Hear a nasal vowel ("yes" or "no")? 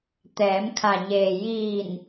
no